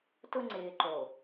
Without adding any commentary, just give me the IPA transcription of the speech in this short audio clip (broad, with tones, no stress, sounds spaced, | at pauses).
t ʊ˦ ŋ͡ǀ ɪː˨ ǃ o˨